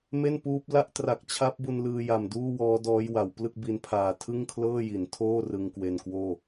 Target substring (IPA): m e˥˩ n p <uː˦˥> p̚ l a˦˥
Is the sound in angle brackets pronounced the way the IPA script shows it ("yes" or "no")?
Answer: yes